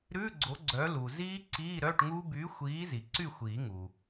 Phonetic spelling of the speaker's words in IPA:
ɾʉ˧˥˧ ɡ͡ǀo˨˥ɡ͡ǀœ˨˥ lu˩ziː˦˥ ǀiː˧˥˧ɾœ˧˥˧ʈŋu˦˥ by˨˥xʷiː˨˥ zi˩ǀy˥˨xʷiː˨˩˦ŋu˩

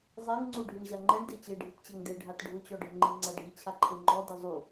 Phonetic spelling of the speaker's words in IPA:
zˤeŋŋ͡ǀu ɖʱiɳʑaŋ͡ǃɛɳ det͡ɕeɖʱitt͡ɕɛŋ deɖʱat ɖʱʊt͡ɕɔɖʱɪŋ͡ǃi ŋ͡ǀaɖʱi t͡ɕʰaǃʰeŋ͡ǃɔ dɪzˤu

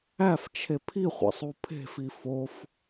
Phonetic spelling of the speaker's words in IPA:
æft͡ʃʰe pʰiχʷæ̰sˤ upʰe̤fi fof

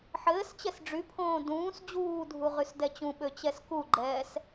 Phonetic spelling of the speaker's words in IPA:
ħɘːst͡ɕɛs ɖ͡ʐypʰõː dũːs d͡ʑuːdʱu ʁysdɛt͡ɕũɓø t͡ɕɛskuɡ͡ǃɛːs

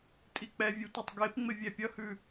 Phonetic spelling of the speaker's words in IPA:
tʼik͡pɛvʲʉ tʷʌtˤɡepŋ͡mɪ vʲɛpʲʌhʉ

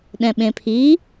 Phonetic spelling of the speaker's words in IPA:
ɗɛ̃ɓẽpʰi

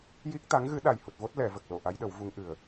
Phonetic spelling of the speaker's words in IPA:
ji˦˥k̚t̪a˧˥ŋɣɨ˧˥ ɗa˨˩jhu˨˩t̚vo˦˥t̚ lɛ˨˩˨ və˨˩k̚lo˨˩˨ ʔa˧˥jɗə˨˩˦wvu˧˥ŋ ʔɨ˨˩ə̯

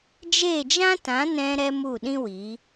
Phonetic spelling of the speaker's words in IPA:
d͡ʒe˦˨d͡ʒã˦tã˨˦nɛ̃˧ ɾɛ˧ mu˦˨ɗĩ˦ wi˨˦

